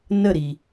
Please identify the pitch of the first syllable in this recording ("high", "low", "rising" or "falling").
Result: falling